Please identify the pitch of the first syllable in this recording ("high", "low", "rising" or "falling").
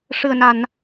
low